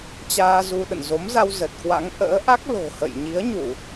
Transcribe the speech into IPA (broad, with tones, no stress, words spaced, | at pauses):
t͡ɕaː˧zu˧ ɗə̰˧˨nzo˨˦mza˧w zə˨˩t̚kwa̰˧˥ŋ ʔə̰ː˧˥ʔa˦˥k̚ lo̤˨˩hə̰˧˨j ɲi˨˦ə̯ɲu˧˩˨